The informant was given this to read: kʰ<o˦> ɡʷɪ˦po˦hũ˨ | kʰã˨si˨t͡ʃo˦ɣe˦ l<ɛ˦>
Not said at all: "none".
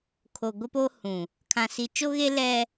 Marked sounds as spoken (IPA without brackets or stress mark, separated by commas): o˨, ɛ˦